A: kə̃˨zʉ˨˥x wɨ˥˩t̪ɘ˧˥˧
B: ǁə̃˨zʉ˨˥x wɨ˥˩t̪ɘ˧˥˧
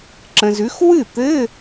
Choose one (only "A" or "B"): B